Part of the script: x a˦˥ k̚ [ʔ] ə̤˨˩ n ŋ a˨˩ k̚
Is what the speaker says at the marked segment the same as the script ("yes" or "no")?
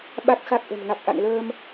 yes